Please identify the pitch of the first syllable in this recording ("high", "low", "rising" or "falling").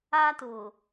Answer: high